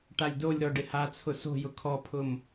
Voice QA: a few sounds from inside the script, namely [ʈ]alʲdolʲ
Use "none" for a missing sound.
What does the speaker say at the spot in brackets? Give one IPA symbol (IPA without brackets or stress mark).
ʈ